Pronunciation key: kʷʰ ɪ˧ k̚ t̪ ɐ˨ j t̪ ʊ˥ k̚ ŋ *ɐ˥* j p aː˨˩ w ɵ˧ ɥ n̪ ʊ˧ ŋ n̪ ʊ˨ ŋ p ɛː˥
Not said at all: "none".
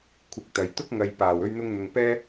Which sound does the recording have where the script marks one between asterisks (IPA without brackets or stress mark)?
ɐ˨